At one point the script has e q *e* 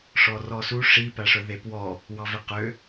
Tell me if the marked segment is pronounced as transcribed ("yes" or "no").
no